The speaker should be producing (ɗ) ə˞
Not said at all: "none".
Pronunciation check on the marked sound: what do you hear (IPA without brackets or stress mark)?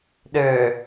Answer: ɗ